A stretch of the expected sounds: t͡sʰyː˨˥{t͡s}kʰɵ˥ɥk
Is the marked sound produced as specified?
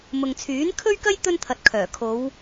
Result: no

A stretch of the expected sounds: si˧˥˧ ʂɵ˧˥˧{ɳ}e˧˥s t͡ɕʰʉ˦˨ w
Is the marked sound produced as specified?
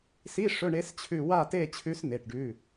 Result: yes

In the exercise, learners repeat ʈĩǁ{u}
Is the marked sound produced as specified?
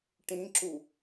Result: yes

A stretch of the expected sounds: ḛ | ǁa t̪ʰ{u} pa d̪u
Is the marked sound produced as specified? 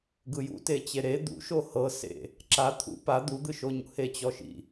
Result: no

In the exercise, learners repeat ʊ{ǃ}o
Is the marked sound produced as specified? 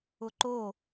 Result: yes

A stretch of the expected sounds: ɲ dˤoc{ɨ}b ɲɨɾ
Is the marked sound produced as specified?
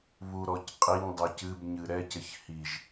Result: yes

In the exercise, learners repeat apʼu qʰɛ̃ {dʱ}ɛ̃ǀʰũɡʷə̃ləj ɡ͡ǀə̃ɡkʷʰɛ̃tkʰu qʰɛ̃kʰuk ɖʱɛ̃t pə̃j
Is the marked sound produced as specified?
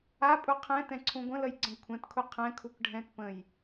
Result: no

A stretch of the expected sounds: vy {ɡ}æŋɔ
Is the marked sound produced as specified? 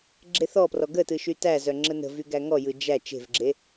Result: yes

